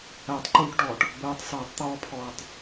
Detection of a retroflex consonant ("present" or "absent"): present